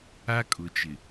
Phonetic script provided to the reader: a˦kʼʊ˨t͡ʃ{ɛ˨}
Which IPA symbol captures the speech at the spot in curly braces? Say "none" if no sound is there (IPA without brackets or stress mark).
ɪ˨